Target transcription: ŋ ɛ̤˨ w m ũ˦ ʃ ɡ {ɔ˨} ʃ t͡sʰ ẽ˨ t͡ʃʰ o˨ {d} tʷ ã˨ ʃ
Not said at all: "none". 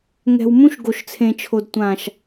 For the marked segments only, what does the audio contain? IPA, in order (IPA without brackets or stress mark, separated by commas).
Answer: o˨, d